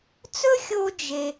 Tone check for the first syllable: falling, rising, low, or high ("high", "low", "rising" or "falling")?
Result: high